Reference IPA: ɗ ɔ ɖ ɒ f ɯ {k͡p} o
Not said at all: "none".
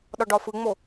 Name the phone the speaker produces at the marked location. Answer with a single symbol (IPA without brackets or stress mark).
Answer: ŋ͡m